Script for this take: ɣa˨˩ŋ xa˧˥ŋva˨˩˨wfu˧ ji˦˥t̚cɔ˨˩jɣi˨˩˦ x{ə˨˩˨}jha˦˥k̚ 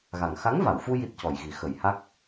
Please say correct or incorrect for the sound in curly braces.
incorrect